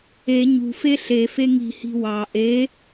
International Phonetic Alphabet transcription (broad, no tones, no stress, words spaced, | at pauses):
e ɲṳfe ɬefe ŋi̤hi̤ wɑ ʔe